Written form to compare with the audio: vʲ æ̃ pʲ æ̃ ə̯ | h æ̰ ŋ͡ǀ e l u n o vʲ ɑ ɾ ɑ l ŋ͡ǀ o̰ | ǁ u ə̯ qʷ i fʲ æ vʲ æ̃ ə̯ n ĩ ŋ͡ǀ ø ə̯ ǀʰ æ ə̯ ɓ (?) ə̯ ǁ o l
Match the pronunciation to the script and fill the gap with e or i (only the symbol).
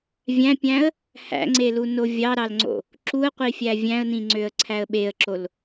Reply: e